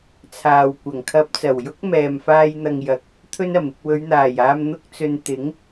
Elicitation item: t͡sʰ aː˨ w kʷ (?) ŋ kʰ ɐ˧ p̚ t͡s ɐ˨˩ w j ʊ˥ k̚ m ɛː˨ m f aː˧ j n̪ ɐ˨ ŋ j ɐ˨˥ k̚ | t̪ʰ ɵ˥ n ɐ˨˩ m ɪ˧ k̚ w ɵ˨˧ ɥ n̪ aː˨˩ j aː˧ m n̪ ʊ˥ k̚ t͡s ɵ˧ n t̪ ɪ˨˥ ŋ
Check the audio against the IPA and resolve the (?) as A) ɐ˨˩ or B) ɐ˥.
A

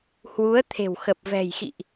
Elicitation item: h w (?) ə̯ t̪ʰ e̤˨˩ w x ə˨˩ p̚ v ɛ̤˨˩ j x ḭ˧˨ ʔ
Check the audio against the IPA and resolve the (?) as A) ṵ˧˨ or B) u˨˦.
B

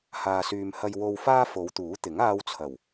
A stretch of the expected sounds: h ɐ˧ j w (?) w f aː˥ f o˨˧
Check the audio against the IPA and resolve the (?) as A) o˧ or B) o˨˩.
A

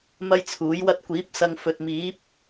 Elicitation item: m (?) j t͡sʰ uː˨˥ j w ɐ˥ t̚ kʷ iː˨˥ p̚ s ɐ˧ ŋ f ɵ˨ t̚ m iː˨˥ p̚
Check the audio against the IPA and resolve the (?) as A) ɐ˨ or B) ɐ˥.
B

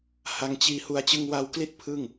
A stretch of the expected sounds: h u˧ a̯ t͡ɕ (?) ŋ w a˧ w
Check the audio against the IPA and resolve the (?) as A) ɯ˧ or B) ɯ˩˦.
A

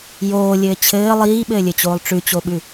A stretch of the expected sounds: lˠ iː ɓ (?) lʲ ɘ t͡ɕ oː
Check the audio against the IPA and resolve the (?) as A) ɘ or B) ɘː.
B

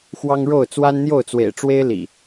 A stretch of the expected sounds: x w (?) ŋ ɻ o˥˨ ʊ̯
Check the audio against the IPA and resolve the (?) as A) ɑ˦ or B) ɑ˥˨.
A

